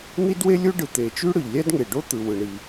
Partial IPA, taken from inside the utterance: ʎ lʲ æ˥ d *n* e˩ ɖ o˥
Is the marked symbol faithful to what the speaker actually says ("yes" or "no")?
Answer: no